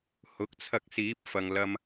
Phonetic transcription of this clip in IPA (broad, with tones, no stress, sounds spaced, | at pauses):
h ʊ˨˥ k̚ t͡sʰ ɐ˧ k̚ s iː˨˥ p̚ f ɐ˨ ŋ l ɐ˧ m